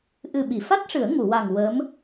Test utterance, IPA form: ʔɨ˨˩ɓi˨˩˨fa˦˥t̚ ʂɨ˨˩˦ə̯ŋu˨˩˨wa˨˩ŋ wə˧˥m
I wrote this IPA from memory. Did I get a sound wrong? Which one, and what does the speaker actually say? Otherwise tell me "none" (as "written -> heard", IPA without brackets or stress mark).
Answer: none